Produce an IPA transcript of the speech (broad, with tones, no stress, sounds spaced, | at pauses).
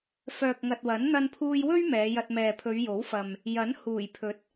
f œː˨ k̚ ŋ ɐ˨ t̚ w ɐ˨˥ n n̪ ɐ˧ n pʰ uː˧ j w ɵ˥ ɥ m ɛː˨˧ j ɐ˧ t̚ m ɛː˨ pʰ ɵ˨˧ ɥ j o˨˥ w f ɐ˨ m | j ɐ˨˥ n h uː˨˩ j pʰ ɵ˨˥ t̚